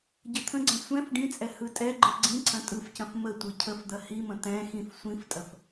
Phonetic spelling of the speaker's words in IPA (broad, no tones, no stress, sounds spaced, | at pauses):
ɟ ə t̪ʰ ə̃ ɡ͡ǀ ɛ̃ sʷ ɛ̃ f ɖ ĩ t͡sʼ ɛ h ɯ tʼ ɛ ɡ͡ǃ ɯ ɡ͡ǀ ĩ ǀʰ ɐ̃ tʼ ɯ f c ɐ̃ f m ə tʷ ɯ cʰ ə f d̪ ɐ h i m ə̃ t̪ ɛ̃ x ĩ f sʷ ĩ f tʼ ɐ f